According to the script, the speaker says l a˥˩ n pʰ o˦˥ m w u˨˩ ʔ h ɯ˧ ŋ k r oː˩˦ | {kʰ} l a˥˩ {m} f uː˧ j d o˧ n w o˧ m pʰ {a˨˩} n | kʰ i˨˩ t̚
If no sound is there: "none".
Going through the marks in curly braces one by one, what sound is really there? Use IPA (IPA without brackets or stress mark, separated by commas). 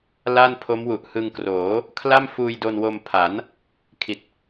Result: kʰ, m, a˩˦